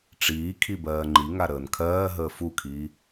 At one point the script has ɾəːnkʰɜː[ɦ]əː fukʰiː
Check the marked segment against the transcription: correct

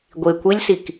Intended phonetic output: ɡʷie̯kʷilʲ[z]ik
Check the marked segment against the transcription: incorrect: s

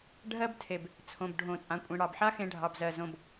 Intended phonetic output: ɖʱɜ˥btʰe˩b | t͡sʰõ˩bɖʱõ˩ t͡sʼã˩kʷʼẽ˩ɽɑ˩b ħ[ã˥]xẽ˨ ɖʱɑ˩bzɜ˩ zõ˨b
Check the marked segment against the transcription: incorrect: a˥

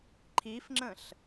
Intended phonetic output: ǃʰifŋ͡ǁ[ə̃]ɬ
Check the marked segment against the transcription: correct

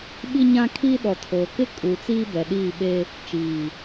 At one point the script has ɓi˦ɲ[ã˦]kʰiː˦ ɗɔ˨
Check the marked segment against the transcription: correct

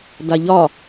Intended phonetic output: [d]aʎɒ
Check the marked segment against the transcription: correct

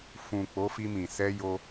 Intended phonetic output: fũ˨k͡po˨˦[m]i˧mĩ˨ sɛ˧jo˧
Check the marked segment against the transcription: incorrect: f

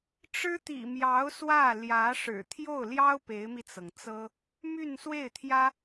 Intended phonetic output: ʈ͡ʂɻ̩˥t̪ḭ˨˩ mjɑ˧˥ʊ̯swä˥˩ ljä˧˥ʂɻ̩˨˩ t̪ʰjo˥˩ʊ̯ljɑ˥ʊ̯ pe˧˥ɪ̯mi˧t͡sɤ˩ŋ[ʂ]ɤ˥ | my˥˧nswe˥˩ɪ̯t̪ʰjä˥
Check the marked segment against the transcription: incorrect: t͡s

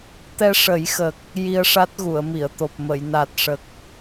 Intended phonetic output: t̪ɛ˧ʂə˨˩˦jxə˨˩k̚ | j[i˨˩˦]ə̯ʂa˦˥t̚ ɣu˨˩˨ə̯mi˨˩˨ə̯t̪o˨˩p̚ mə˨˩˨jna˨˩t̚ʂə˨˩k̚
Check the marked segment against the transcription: incorrect: i˧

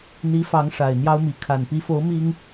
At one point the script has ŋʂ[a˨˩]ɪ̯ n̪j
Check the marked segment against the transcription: correct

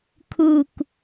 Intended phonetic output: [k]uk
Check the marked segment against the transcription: incorrect: kʰ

